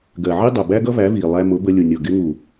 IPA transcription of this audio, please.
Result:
ɡ ɜ˨ ʕ i˦ dˤ ɜ˨ b æ˦ ɡ ʌ˦ v æ˨˦ v iː˨ lˠ æ˧ m ʊ˨˦ b ə˧ lʲ ʊ˨ nʲ ɔ˨ ɡ ɪ˧ ŋ u˨

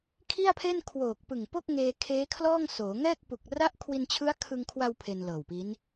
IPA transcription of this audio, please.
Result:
kʰ i˥˩ a̯ pʰ e˥˩ n kʰ w oː˨˩ k̚ p ɯ˨˩ ŋ p o˥˩ k̚ ŋ eː˧ kʰ eː˦˥ kʰ l ɔː˥˩ ŋ s oː˩˦ ŋ ɛː˥˩ k̚ p u˨˩ k̚ r a˥˩ ʔ kʰ w i˧ n t͡ɕʰ ɯ˦˥ a̯ kʰ ɯ˧ ŋ kʰ w a˧ w pʰ e˧ n l ɤː˨˩ w p i˦˥ n

